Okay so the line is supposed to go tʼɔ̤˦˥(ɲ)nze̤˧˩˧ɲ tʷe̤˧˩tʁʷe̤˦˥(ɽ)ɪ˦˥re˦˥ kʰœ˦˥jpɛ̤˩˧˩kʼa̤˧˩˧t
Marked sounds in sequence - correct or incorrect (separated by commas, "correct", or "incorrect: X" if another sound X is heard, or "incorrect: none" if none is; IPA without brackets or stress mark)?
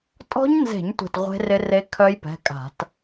correct, incorrect: r